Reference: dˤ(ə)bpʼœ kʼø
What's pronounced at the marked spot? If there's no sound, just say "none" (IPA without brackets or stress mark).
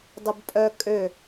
ə